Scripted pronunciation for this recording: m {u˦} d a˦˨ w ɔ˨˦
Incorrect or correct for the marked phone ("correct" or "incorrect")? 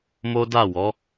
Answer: incorrect